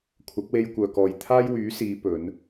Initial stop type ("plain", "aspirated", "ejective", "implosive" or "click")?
aspirated